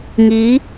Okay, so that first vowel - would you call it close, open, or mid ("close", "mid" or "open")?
close